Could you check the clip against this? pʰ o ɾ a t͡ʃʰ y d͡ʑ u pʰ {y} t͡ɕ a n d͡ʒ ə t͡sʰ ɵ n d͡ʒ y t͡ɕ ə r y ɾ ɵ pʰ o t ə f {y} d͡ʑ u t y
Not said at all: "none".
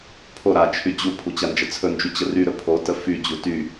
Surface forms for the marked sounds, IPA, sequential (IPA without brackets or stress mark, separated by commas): u, y